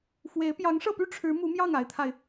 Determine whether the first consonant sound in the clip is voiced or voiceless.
voiceless